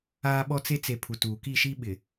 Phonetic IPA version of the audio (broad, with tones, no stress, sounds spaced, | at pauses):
aː˦ ɓ ɔ˦ t͡s e˦ t͡s e˨ pʰ u˨ t uː˨ k iː˦˨ ʃ iː˦ ɓ ɪ˨